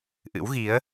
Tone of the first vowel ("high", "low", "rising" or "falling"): rising